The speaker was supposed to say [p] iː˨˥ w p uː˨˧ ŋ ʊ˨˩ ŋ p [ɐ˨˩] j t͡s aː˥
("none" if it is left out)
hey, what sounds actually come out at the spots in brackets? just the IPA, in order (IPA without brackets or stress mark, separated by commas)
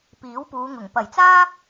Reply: p, ɐ˨˩